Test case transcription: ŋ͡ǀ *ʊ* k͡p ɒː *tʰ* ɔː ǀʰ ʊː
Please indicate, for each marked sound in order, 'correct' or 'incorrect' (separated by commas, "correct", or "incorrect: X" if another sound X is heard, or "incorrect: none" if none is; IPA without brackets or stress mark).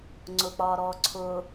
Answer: correct, incorrect: ɾ